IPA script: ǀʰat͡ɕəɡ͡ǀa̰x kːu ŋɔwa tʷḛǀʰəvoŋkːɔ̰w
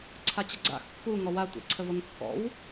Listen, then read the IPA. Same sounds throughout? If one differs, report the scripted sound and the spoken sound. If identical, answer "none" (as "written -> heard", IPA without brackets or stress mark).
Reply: none